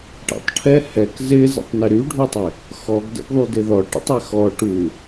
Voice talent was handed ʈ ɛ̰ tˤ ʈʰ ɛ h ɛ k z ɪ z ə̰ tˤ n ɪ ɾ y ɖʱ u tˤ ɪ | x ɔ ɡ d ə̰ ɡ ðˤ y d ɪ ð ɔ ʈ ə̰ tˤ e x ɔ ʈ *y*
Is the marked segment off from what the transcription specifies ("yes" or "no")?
yes